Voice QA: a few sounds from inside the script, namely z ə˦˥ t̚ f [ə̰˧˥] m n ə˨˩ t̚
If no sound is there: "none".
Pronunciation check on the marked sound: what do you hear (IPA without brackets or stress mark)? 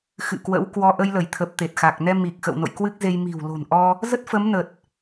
ə˨˦